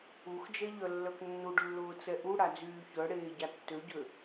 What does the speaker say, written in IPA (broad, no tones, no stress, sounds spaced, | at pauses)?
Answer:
u x d͡ʒ ɛ ʎ œ lː œ k nː u ɖ lː ʊː t͡s ɛ ʔ u ɽ a d͡z yː ç œ ɽ eː ɟ a tː ø ɟ ø